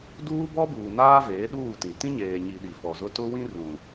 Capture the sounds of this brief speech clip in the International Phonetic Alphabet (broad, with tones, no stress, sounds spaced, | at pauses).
d uː˦ b ɔ˦ b uː˨ n aː˦ v eː˨˦ ɗ uː˦˨ t ĩ˨ t ĩ˦ ɲ eː˨ ɲ i˨ ɗ i˨ f ɔ˨ z ʊ˦ t ʊ˦ w ĩ˦ r ũ˨